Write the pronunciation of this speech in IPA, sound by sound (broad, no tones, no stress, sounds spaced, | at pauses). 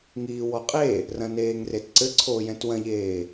ŋ iː w ɔ qʼ e | r ɐ̃ n eː ŋ r e t ǀ ɘ ǀʰ oː j ɛ̃ t w ɐ̃ ʎ eː